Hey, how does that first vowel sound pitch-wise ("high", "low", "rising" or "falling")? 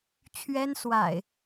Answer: high